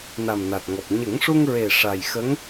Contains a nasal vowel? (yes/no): no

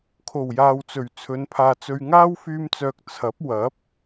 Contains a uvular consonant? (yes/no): no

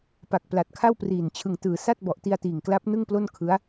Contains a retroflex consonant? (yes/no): no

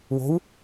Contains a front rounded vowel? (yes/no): no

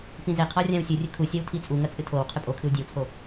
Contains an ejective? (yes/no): yes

